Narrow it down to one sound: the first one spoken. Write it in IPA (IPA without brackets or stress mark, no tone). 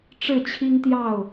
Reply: ʈ͡ʂ